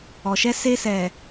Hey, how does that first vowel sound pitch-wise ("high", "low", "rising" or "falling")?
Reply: low